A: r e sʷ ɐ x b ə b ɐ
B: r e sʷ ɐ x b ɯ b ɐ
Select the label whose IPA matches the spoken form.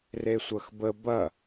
A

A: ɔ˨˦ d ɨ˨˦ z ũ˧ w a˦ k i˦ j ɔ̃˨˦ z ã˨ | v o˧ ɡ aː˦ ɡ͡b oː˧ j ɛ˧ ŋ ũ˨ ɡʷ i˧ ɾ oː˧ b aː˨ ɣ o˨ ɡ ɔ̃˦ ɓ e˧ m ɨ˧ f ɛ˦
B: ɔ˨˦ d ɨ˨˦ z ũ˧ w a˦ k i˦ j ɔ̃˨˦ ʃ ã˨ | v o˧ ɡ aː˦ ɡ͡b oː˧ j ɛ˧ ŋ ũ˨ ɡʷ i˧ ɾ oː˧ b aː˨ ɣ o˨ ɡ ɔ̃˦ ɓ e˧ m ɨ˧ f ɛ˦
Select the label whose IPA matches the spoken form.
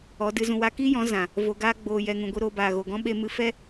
A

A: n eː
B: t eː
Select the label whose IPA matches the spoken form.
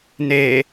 A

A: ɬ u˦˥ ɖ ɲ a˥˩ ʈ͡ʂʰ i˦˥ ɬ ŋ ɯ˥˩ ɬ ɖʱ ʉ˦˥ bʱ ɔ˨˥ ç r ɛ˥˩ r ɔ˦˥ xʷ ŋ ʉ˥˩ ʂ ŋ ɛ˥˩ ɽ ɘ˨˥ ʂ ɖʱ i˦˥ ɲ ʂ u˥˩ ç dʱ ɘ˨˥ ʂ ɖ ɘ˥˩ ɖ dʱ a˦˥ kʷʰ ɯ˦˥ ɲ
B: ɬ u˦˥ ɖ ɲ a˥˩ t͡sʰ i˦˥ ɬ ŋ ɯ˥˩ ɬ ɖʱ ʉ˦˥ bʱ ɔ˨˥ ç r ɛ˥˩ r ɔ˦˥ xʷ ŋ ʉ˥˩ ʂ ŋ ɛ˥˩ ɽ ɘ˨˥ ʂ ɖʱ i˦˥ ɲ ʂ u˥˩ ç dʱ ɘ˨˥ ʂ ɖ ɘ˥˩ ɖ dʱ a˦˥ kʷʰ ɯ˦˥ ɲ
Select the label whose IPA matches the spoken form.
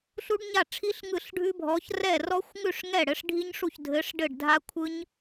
A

